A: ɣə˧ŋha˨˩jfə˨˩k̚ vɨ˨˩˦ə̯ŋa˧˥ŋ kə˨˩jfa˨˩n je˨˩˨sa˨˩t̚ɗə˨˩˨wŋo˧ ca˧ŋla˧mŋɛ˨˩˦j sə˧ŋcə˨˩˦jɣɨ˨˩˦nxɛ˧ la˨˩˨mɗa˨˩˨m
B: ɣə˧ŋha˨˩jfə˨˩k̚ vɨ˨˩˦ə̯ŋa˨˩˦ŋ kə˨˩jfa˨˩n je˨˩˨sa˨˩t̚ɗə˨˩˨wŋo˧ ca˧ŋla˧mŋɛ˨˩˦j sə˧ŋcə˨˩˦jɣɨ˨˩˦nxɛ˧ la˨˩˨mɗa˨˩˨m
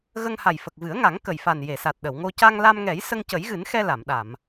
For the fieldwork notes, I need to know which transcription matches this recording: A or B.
B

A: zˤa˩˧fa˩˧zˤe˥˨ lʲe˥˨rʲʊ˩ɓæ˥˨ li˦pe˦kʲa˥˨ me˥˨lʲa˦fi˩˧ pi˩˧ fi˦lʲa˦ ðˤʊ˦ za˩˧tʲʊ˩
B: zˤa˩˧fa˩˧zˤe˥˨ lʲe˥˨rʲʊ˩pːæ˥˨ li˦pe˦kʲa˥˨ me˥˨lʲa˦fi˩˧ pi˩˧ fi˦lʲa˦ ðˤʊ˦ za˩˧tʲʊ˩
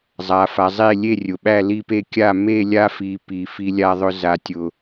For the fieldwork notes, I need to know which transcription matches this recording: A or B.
A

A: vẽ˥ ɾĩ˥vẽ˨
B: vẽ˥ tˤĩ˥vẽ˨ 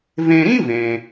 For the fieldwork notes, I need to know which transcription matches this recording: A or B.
A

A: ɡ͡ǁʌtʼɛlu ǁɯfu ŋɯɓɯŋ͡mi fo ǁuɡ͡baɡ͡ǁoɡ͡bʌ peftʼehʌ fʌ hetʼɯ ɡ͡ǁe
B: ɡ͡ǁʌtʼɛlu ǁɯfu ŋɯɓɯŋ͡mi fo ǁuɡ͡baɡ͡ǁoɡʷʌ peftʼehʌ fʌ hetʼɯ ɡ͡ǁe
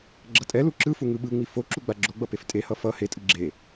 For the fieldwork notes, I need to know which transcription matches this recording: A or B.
A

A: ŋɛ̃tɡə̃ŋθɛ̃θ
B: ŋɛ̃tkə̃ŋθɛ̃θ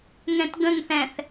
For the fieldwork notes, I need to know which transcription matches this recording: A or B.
A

